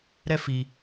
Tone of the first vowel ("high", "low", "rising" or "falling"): high